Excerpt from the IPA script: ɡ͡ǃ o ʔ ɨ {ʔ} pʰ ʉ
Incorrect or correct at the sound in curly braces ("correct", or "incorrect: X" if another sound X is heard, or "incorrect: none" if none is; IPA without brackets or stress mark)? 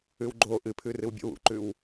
incorrect: none